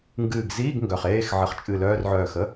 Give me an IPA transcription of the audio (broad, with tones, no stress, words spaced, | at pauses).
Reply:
ŋɡɨː˧˩ɡzi˧˥˧ɡ ŋɡœ˧˩χeː˧˥˧x ʕə˧˩χt͡ʃʼɨ˧˩lœː˧˥˧rʕœː˧˩x ə˧˥˧